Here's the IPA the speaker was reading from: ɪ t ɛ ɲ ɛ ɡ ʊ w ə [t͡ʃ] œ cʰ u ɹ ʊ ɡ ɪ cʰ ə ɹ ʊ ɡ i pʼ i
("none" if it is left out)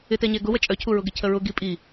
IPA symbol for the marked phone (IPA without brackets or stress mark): t͡ʃʼ